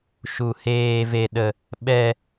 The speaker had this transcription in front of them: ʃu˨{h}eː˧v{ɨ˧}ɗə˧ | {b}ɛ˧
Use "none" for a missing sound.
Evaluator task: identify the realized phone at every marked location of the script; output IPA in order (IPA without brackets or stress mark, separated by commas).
h, e˧, ɓ